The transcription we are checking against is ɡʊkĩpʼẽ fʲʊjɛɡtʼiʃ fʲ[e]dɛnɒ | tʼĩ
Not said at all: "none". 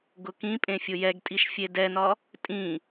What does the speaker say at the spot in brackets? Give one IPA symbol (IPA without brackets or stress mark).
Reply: e